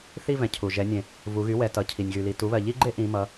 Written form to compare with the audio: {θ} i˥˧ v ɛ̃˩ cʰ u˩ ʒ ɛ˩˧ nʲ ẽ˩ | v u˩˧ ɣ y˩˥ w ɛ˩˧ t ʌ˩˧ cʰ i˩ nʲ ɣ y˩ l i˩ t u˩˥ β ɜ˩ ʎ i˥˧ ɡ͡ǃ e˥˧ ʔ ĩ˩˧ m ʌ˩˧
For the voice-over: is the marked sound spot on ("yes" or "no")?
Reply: yes